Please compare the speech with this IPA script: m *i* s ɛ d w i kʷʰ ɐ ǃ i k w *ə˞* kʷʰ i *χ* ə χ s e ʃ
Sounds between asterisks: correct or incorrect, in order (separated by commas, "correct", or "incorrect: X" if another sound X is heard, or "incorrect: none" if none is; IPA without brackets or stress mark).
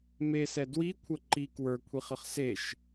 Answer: incorrect: e, correct, correct